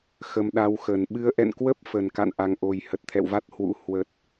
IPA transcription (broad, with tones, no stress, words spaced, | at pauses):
xə˧mɗa˧wxə˨˩n ɓɨ˨˦ə̯ʔɛ̰˧˨nkwə˦˥p̚ fə˨˩n ka̰˧˨nʔa˨˩ŋʔo˨˩j hə˨˩t̚t̪ʰɛ̰˧˨wva˦˥t̚ hwṵ˧˥ hwə˨˩t̚